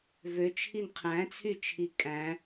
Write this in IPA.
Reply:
v ø t͡ʃʰ i n qʰ æ̃ t͡sʰ y t͡ʃʰ i kʼ æ̃

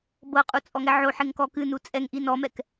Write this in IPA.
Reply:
b ɤ qʼ u t͡sʼ ɔ ŋ ɛ ʕ o ħ e ŋ k ɔ k ɨ n u t͡sʼ ɛ ŋ ʔ i n ɔ m ɛ k

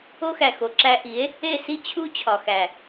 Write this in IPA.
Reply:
o˦ x æ˨ x o˨ ǁ æ˧ ʔ i˨˦ e̯ | e˦˨ s i˦ t͡ɕʰ u˦ t͡ɕʰ ɒ˨ x æ˨

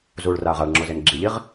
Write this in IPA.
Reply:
z uː ɭ r aː ʁ a ɭ ŋ͡ǁ o z e n ɡ͡ǁ i ʎ i ʁ

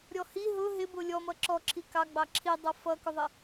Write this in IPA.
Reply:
ɾʲ ɔ h i ɦ ʊ ɦ ɪ b ʊ lʲ ɔ m ʌ ǁ ɔ ǁʰ i k ɑ ɡ͡b ɑ ǁʰ i dˤ ʌ f ʌ k ʊ ðˤ ɪ

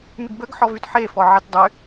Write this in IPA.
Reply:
m y ɡ b ə ɡ ħ ɔ v y t ħ e f ɔ ʕ e t dˤ y

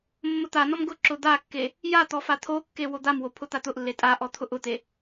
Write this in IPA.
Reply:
mː ʊ t̪ a n ɔ m ɡ ʊ ǁ ʊ d̪ a kː e | j a t̪ ɔ f a t̪ʰ o kː e w o d̪ a m w o pʰ ʊ t̪ a t̪ ʊ ʔ lː e tʼ a ʔ ɔ t̪ʰ ʊ ʔ ʊ t̪ e

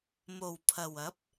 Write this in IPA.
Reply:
m o˨˩ w pʰ ɐ˨˩ w ɐ˨˥ p̚

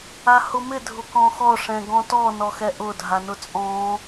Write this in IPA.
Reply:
a h ʊ m ɪ dʱ ʊ k ɔ̃ x ɔ ʂ ɛ̃ ɡ ɔ̃ t ɔ n ɔ x ɛ ʔ ʊ dʱ a n ʊ t͡sʼ ɔ̃

